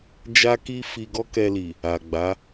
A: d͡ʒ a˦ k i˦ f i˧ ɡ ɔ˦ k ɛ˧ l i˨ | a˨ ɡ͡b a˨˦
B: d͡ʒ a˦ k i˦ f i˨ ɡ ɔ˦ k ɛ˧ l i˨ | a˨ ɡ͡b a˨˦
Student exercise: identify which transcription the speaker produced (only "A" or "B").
A